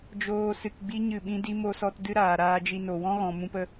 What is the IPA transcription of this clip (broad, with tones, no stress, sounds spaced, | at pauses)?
d͡ʒ oː˦ s ɨ˧ k ɡ͡b i˦ ɲ ɨ˦˨ ɓ ĩ˦ d i˦ m o˧ s ɔ˧ t d ɨ˦ ɾ aː˨ ɾ aː˧ d͡ʒ i˧ n o˨ w ɔ̃˦ ɣ ɔ̃˨ m ũ˧ p ə˧